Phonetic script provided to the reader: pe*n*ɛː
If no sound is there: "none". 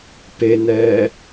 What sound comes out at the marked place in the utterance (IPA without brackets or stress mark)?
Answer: n